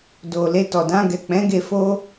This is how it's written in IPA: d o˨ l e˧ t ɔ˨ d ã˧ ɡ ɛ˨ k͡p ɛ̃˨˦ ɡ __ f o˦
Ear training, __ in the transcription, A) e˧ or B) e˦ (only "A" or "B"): A